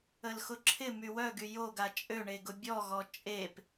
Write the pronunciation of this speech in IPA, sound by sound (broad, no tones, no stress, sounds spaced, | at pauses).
ə l x ʊ ǁʰ ɪ m y w œ ɡ y j o ɡ a t͡ʃʼ ø ɳ e ɡ ʊ bʲ ɔ ɣ ɔ t͡ʃʼ e p